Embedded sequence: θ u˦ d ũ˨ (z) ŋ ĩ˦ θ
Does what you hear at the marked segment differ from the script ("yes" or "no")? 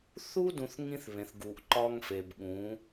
yes